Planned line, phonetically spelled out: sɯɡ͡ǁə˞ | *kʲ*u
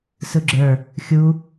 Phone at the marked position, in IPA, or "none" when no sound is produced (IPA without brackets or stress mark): xʲ